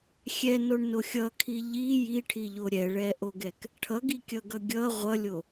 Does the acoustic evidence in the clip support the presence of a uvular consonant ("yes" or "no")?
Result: yes